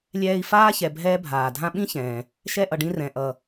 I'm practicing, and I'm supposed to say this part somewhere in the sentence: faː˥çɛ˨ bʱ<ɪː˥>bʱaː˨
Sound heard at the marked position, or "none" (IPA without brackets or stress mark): ɛː˥